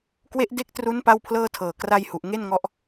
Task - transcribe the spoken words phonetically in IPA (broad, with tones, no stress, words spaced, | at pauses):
kwe˦˥ʔde˦˥k̚tru˦˥n pa˥˩wpʰlɤː˥˩tʰɤː˨˩ kra˥˩jhu˨˩ʔ ŋe˥˩nŋɔ˦˥ʔ